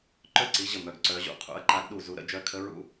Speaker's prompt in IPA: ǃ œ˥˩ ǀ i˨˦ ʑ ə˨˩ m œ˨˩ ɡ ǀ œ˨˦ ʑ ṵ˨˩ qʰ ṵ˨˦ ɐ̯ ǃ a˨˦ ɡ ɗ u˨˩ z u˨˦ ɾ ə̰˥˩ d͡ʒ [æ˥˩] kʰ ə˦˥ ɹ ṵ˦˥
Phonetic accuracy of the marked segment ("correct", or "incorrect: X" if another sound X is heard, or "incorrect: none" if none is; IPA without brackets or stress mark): incorrect: œ˥˩